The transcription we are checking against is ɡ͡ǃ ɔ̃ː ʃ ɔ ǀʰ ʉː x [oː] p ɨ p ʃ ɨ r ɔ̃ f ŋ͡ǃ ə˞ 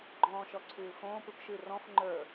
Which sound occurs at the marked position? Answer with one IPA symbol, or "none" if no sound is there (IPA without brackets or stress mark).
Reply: õː